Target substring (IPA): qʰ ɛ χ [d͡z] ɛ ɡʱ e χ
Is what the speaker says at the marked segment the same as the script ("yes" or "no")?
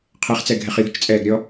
no